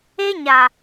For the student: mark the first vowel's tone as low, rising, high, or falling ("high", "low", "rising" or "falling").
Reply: high